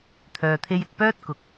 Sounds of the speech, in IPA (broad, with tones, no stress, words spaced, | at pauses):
t̪ʰœː˨t̪ʰe˧jɪ˨k̚ pœː˥t̚kʊ˨k̚